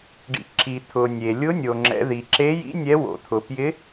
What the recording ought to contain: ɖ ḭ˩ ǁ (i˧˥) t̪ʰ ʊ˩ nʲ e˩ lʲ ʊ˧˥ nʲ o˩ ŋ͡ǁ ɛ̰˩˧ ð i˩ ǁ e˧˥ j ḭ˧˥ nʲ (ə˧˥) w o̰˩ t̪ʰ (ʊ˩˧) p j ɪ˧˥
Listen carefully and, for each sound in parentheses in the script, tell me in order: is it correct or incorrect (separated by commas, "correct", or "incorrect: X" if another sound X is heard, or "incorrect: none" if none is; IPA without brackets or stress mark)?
incorrect: i˩, incorrect: ɛ˧˥, incorrect: ʊ˩